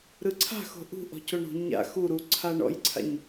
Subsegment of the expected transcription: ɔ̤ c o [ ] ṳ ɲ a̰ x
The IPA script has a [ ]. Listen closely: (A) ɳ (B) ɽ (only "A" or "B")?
A